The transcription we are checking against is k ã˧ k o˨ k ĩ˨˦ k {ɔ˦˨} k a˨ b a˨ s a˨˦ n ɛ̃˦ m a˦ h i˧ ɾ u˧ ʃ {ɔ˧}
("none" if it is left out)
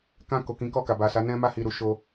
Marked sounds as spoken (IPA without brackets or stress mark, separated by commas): ɔ˦˨, o˧